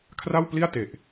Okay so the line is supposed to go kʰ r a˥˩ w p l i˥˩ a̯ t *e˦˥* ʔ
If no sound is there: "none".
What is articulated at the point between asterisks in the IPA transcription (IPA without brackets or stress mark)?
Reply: e˨˩